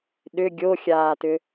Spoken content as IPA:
ɗ ʏ ɡʲ o xʲ aː t ʏ

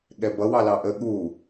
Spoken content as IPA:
ɠ ɛ b ʌ w ɑ l ɑ ʔ ə ɠ u

